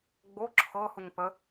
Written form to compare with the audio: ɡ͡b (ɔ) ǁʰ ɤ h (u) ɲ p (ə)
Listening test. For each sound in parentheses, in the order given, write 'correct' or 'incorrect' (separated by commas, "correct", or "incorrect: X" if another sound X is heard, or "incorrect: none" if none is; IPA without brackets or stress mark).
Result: incorrect: o, correct, correct